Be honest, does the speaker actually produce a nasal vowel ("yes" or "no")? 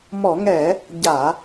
no